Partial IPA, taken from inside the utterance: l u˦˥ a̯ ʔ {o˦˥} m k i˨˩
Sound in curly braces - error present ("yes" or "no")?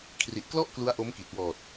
no